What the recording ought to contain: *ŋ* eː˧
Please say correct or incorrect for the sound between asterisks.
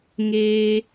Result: correct